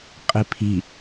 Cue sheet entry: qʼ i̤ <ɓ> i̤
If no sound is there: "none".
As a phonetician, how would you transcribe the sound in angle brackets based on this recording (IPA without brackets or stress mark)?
pʰ